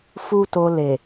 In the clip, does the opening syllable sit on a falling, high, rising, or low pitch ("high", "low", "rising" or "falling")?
high